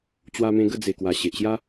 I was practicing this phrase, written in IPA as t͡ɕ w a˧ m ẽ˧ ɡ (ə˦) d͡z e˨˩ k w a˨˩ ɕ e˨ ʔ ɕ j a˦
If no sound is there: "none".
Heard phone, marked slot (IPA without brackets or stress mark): ə˥˧